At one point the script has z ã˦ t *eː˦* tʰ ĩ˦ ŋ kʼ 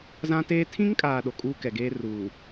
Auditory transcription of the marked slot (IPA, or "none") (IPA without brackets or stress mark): eː˦